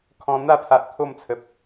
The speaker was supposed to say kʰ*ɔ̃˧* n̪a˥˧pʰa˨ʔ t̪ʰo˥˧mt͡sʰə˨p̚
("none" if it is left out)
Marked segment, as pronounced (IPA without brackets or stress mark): ɔ̃˧